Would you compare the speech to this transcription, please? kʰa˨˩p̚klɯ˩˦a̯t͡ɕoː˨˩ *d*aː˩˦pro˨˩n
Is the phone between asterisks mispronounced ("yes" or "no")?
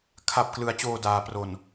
no